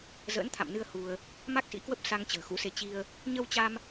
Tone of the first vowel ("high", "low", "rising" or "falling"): rising